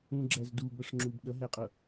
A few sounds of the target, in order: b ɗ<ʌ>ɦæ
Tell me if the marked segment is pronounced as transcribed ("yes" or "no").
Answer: yes